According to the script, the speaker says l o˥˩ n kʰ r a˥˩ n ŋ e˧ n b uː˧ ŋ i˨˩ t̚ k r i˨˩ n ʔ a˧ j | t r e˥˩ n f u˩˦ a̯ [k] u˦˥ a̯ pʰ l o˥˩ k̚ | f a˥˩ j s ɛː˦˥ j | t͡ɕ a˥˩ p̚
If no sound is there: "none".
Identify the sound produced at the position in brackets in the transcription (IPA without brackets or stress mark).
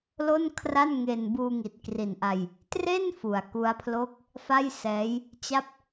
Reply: k